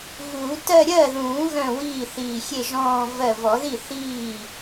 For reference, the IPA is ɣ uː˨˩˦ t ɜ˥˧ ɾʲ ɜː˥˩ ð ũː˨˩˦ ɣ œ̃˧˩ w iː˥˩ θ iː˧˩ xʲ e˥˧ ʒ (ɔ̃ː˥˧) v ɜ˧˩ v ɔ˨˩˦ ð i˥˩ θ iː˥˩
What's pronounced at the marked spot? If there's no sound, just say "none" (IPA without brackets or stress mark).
ɔ̃ː˥˧